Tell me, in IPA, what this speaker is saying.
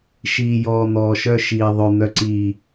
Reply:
ʃ iː˨ j ɔː˨ n̪ ɔː˨ ʃ œ˧ ʃ iː˨ ðˤ ʉ˨ n̪ œ˨ ǀ iː˨

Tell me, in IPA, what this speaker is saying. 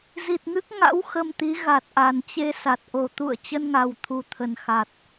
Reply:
z i˨˩ t̚ ŋ ɨ˦˥ k̚ ŋ a̰˧˥ w x ə˧ m t̪ i˨˦ ɣ a˨˩ t̚ ʔ a˨˩ n t͡ɕ e˧ s a˨˩ t̚ ʔ o˨˩ t̪ ṵ˧˨ ə̯ t͡ɕ ə˧ n ŋ a˨˩ w t̪ʰ u˨˩ t̪ʰ ə˨˩ n x a˨˩ t̚

